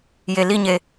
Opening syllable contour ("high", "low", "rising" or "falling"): low